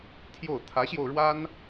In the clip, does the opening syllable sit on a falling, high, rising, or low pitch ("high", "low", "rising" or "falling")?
falling